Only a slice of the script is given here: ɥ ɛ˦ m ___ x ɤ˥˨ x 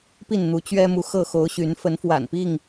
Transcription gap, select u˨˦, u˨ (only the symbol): u˨